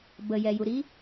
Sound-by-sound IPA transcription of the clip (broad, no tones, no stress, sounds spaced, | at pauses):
b ə j ɛ j u ɾ i